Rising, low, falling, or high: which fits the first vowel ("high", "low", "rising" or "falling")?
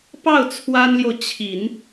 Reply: falling